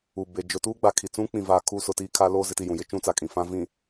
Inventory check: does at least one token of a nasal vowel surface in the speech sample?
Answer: yes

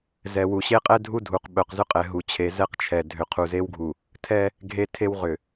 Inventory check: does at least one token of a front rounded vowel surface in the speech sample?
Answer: yes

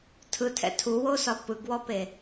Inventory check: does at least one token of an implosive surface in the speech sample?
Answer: no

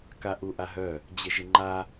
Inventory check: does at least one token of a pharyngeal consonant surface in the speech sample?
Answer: no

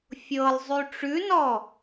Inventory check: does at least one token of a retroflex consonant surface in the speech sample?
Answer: yes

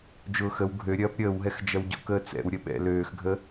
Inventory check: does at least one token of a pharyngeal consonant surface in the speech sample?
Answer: no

